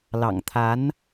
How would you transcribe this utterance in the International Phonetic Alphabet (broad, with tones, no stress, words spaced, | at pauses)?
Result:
lɑ̰˨˩ŋt̪ʰa˧˥n